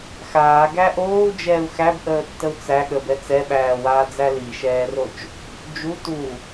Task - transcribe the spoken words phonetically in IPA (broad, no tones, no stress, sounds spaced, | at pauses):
x aː ɡ æ ʔ oː u̯ d͡ʒ ɛː u̯ x æ b ʔ əː tː ə u̯ t͡s æ ɠ ə b ɛ t͡s ɛ ɓ æː w aː d͡z æ l i ʃ ɛː r o t͡ʃ | d͡ʒ u t u